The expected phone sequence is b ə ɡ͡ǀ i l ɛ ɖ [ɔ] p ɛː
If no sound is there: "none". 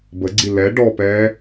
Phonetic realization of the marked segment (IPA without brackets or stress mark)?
ɔ